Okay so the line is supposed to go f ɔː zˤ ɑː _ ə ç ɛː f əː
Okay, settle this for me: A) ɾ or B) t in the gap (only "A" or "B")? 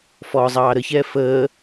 A